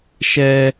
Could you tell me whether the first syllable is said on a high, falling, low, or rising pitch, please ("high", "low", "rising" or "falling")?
high